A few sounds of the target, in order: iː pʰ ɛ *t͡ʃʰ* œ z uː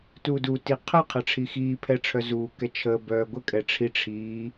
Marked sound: incorrect: ʈ͡ʂʰ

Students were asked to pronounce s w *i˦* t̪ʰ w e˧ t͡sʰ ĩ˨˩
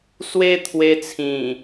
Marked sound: incorrect: e˦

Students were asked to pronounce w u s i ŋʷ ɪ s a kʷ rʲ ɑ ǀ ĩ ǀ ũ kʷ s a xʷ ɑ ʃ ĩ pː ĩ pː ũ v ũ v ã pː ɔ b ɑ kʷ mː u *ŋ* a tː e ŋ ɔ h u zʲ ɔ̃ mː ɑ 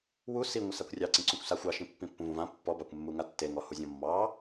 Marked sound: correct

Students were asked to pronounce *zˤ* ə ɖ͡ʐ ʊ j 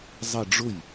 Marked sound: correct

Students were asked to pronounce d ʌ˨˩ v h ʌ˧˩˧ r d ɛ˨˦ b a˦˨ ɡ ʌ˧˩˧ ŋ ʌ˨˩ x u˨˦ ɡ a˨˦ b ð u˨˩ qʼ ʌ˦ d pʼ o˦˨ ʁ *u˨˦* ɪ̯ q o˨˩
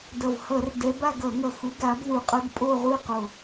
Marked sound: incorrect: u˦˨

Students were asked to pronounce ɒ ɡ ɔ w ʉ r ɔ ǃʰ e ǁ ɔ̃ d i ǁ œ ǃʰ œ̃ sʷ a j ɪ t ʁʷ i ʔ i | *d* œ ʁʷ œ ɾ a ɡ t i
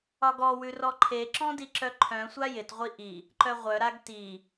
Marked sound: incorrect: ǃ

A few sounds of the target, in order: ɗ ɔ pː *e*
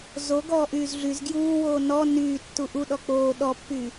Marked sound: incorrect: y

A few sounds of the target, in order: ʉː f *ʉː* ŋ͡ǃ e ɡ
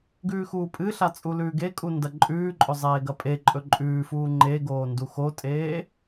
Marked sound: incorrect: uː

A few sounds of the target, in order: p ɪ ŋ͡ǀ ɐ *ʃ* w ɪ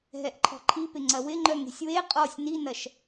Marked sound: incorrect: none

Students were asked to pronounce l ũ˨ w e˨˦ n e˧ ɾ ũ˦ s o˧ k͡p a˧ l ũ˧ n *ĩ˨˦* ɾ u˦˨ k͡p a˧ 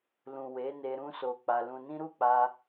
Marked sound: incorrect: ĩ˦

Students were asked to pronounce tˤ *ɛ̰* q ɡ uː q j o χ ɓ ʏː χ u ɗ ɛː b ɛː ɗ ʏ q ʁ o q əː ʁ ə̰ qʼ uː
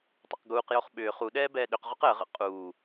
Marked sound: correct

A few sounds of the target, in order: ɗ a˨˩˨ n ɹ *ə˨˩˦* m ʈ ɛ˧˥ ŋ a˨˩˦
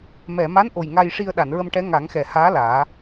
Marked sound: incorrect: ə˧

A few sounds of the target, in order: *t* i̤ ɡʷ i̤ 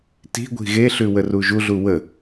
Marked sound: correct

